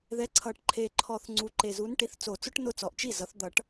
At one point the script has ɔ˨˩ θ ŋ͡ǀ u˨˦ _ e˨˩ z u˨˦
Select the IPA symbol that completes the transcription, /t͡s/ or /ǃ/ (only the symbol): ǃ